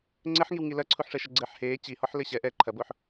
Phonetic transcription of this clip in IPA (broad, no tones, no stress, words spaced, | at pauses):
ŋ͡ǀɘħŋiwŋi lɐǀʰuħʂɛʃɐ ɡ͡ǀɘːħheː t͡ɕihɔħ lɘɕɛ ʔɛ ǃʰɐboħ